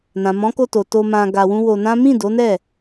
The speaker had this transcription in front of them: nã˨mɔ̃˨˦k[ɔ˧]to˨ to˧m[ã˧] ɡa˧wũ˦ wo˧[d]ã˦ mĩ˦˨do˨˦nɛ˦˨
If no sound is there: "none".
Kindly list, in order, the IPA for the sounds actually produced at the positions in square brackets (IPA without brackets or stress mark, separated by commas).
o˧, ã˧, n